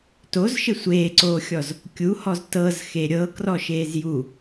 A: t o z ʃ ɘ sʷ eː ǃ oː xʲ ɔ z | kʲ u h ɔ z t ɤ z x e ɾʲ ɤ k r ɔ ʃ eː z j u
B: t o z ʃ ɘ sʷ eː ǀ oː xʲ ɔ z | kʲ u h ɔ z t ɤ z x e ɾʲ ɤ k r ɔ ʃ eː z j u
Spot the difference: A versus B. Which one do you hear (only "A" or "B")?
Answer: B